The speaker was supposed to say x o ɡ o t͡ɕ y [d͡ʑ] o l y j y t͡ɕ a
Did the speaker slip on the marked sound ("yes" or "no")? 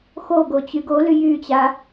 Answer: yes